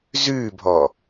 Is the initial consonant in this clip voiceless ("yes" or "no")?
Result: no